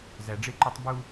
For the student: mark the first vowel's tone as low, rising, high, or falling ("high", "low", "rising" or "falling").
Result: low